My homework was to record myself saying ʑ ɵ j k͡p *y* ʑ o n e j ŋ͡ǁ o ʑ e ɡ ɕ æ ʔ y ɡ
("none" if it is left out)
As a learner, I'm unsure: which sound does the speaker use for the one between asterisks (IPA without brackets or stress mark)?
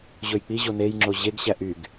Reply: i